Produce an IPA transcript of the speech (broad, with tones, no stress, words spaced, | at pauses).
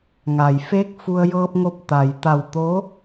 ŋa˩j feː˧˥k̚fu˧ə̯ jɤː˧p̚ŋo˧p̚ t̪a˩jt̪a˧˩w t̪o˧˥